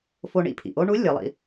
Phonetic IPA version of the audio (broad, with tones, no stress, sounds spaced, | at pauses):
f o˧ ɳ ḭ˧ pʰ ḭ˩ ʔ o˥ ɳ u˧˥ lʲ ɤ˩˧ lˠ ḭ˧